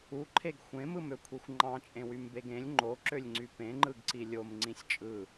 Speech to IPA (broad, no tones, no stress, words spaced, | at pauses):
uǃʰeɡ xʷẽmɯmøkʷʰixʷ ŋ͡ǃɑ̃t͡ʃʼẽwymbeɡ ẽlʲ ŋ͡ǃoǁølʲŋ͡ǀy pẽŋ͡ǃɯɡǀi lʲomŋ͡ǀĩsʲ t͡ʃʼɯ